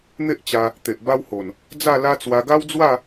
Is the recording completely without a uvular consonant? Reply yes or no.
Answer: yes